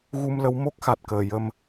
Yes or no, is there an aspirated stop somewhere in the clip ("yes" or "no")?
no